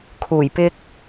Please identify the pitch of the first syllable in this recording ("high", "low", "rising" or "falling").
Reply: low